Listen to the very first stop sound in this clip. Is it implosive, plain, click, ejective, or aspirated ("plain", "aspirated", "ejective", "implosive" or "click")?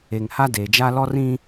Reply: plain